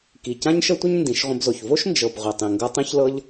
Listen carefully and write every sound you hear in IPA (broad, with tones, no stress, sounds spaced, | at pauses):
k i˨ c ã˦ ɲ ʃ ə˦ tʷ ə˦ ɲ n d ĩ˨˦ ʃ ʁʷ ə̃˧ b z o˨ ç v o˦ ʃ n d͡ʒ ɤ˨ b ʁʷ ɛ˨ tˤ ĩ˨ ŋ ɡ ɤ˧ tˤ ĩ˦ ç l ɤ˦ ʎ